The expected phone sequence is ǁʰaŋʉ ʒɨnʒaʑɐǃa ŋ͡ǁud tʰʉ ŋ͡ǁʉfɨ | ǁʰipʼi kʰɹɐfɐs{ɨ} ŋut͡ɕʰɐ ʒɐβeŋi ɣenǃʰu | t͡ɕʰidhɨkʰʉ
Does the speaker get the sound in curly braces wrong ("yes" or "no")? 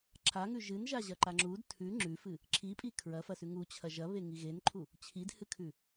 yes